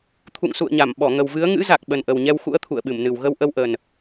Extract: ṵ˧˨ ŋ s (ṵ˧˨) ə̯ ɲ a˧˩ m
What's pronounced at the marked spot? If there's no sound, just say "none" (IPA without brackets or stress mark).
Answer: ṵ˧˨